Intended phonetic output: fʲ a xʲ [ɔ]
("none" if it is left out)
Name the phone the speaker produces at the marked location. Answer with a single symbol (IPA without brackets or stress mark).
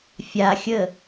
ə